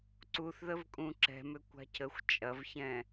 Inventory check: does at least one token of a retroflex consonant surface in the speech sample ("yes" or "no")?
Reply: no